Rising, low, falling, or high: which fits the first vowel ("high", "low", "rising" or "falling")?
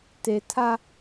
low